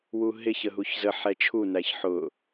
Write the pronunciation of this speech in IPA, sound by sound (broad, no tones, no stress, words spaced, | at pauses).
wuɦɪç əɦuçzə ħɛt͡ʃʰunæç ħʊ